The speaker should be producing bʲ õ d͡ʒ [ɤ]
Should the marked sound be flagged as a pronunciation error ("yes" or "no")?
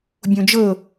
no